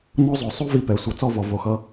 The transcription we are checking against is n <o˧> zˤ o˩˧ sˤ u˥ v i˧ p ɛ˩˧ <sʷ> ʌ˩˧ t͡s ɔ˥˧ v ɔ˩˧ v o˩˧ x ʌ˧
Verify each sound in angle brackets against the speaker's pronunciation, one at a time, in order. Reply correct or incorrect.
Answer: incorrect: o˥, correct

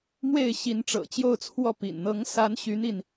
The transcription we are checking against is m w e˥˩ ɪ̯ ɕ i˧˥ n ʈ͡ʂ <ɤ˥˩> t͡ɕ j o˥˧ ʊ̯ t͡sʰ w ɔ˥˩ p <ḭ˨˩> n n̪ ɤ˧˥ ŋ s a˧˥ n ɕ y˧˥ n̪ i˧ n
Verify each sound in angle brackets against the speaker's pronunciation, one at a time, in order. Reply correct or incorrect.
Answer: incorrect: ɤ̰˨˩, correct

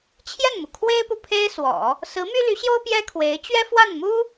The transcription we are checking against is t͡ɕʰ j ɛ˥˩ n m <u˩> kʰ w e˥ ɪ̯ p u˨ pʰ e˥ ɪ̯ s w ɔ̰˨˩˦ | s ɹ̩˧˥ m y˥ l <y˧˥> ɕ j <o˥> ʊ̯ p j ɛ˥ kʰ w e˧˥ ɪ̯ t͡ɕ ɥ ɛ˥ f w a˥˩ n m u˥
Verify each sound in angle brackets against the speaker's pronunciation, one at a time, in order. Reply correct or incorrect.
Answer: correct, correct, correct

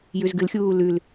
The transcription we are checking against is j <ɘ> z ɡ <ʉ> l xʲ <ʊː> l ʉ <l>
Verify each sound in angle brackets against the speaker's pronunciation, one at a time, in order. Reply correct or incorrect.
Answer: incorrect: ʉ, incorrect: ɨ, incorrect: uː, correct

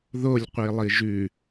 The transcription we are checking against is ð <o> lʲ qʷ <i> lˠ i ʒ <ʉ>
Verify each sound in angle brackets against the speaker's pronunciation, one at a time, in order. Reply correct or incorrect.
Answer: correct, correct, correct

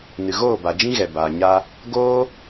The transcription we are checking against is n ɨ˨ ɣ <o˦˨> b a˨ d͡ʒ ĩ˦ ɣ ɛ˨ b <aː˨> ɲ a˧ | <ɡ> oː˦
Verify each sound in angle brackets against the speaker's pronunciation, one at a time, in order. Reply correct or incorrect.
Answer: incorrect: oː˦˨, correct, correct

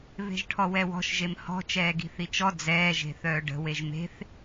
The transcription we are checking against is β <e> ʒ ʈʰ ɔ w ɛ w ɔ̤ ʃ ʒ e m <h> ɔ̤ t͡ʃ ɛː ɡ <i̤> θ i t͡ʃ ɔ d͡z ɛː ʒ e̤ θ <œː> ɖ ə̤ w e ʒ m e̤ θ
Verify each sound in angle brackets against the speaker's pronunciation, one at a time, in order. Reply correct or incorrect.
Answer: incorrect: e̤, correct, correct, correct

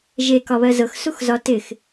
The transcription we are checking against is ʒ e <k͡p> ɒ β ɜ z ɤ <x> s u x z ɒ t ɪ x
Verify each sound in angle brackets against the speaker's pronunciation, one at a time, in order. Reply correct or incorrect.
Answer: incorrect: k, correct

